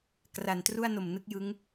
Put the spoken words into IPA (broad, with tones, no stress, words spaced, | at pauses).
kra˨˩ntru˥˩a̯no˨˩m nɯ˥˩k̚jɯ˦˥ŋ